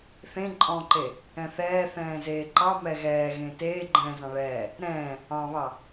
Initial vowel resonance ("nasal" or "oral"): nasal